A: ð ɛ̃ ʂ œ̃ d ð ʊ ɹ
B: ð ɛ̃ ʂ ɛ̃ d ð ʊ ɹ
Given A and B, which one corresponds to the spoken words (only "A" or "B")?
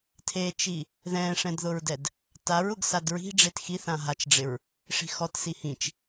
B